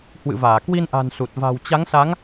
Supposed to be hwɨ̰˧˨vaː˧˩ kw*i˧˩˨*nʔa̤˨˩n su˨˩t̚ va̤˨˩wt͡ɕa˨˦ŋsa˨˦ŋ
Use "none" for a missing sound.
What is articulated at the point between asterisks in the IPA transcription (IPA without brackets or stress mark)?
i˧